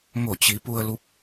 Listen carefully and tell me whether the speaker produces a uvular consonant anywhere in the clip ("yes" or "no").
no